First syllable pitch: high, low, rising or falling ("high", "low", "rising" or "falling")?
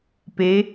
rising